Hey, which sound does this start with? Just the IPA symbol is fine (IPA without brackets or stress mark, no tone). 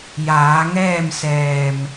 j